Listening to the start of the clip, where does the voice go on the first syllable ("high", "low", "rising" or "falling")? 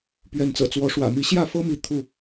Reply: rising